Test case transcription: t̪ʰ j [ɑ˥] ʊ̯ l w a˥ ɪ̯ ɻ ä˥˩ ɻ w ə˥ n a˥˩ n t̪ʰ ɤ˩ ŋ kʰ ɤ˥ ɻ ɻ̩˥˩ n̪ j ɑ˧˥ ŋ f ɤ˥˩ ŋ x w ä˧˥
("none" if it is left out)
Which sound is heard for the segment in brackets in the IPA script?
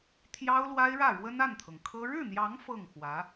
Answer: ɑ˥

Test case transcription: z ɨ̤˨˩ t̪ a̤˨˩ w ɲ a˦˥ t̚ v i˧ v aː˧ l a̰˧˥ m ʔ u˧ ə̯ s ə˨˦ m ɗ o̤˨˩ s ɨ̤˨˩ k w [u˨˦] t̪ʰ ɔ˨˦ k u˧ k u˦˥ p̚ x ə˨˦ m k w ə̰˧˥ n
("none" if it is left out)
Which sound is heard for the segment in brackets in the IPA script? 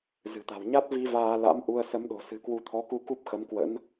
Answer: u˨˦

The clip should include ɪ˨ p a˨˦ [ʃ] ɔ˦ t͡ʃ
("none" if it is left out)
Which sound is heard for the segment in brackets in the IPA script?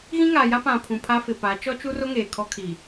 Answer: t͡ʃ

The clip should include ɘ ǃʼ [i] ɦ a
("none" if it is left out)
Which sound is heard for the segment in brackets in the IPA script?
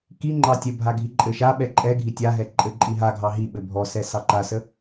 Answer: i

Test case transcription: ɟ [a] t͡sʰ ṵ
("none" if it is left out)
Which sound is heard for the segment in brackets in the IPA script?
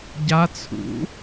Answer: a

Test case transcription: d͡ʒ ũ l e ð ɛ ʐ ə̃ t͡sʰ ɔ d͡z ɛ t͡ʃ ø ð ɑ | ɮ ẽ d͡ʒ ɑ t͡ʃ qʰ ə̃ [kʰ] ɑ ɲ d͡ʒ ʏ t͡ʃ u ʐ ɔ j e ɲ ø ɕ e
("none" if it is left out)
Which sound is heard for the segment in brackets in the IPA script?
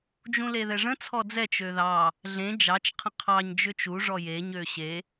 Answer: qʰ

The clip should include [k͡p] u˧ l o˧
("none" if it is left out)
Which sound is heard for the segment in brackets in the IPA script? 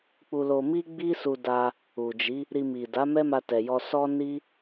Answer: k͡p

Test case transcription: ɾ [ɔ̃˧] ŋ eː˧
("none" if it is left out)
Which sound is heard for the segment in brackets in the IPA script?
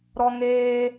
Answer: ɔ˧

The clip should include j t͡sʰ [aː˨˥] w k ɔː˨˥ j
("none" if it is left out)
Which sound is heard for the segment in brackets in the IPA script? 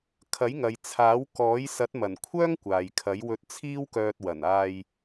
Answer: aː˨˥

